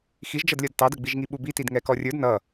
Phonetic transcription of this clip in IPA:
x i ʒ d͡ʒ ʌ d lʲ ʌ d t ɑ d ə ɡ͡b i ʒ ŋ i ɓ u b i t i d ŋ ɛ k ɔ rʲ ə˞ d n ʌ

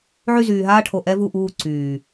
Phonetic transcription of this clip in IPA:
ʕ y˦˨ z yː˨ ɦ aː˦ ʈʰ o˨ ʔ ɛ˦ v u˦˨ ʔ uː˦˨ ǀ yː˨

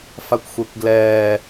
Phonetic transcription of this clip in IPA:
f a kʷ xʷ e kʷ ɡ l ɛː

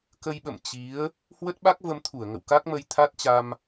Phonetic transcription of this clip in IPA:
k ə˧ j ɓ ə̰˧˨ m t͡ɕ i˨˦ ə̯ | h w ə˦˥ t̚ ɓ a˦˥ k̚ v ə˧ m t̪ʰ u˧˩ ə̯ ŋ ə̰˧˨ w k a˦˥ k̚ m ə˧ j t̪ʰ a˦˥ t̚ t͡ɕ a˧ m

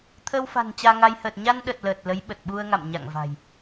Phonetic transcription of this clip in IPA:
t̪ʰ əː˧ w f a̤˨˩ n t͡ɕ aː˧ ŋ a˧ j h əː˨˩ t̚ ɲ a˧ n ɗ ə˨˩ t̚ l əː˨˩ t̚ l ə˨˦ j ɓ ə˨˩ t̚ ɓ u˧ ə̯ ŋ a̰˧˨ m ɲ a̰˧˨ ŋ v a̤˨˩ j

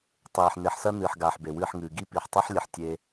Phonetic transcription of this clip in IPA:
tˤ eː˨ ħ n e˨ ħ s ɐ˦ n ɨː˨ ħ ɡ aː˨ ħ b e˨ w ɨː˦˨ ħ ŋ ɨː˨ ɡ i˦ p i˨ ħ tˤ ɨ˦ ħ lʲ ɘ˨ ħ tʲ e˦

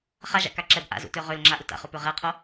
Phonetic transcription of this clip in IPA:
χ a ʒ a̰ k a ǁ ɛ b ʔ a̰ z ṵ t ø ʁ ø l ŋ͡ǁ a ʔ u t a̰ χ o p ø ʁ ɛ qʰ o

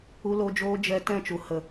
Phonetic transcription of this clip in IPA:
u˧ l o˧ d͡ʒ oː˧ d͡ʒ ɛ˧ t ɛ̃˦˨ t͡ʃ u˨ h ə˨

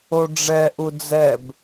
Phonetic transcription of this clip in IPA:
o ɖ͡ʐ ɛ ʔ u d͡z ɛ b

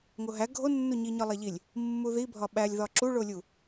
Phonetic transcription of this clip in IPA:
ŋ o ɦ æ ɡʱ o nː u ɲ i ɲ ɒ lˠ æ ʎ i lʲ | mː u ð i bʱ ɒ ɓ æ lʲ ð ɒ ǁ u ɭ o lʲ u

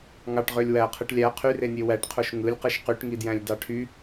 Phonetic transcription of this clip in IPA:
ŋ ɑ ʈ ʁ ø lʲ w æ qʰ ɯ ʈ lʲ æ qʰ y r e nʲ e w æ ʈ qʰ o ʃ ŋ ɯ lʲ q ɯ ʃ q y ʈ ŋ i d j æ̃ lʲ d ɑ ʈʰ y

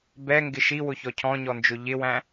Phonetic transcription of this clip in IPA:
b ɛ ŋ ɡ ɪ ʃ i w ʊ ç ɔ cʰ ɔ̃ ɲ ɔ n d͡ʒ ʊ ʎ ɪ w æ̃

